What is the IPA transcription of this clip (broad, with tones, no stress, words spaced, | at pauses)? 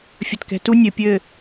fʲə˨tkɛ̤˨tu˦ nʲɘ˨pʲɘ˦˨